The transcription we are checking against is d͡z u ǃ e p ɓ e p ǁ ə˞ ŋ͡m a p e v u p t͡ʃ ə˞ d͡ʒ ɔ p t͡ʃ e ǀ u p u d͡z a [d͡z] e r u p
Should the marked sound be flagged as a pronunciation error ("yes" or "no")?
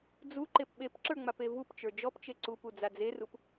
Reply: no